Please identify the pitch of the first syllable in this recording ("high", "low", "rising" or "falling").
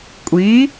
rising